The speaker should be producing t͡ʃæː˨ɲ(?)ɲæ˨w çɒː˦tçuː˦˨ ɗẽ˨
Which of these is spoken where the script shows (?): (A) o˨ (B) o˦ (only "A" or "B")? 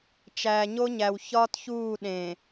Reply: B